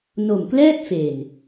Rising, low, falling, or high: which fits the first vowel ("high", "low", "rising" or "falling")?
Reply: low